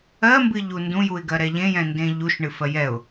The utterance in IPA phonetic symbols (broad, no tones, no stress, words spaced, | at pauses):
ɜmbɨʎu ndũjuɪ̯ɡɜɾɛ ʎẽjɛ̃ndẽ ʎuʃɳɨfɜ jɛʊ̯